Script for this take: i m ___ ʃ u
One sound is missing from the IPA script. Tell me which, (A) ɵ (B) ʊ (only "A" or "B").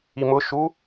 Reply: B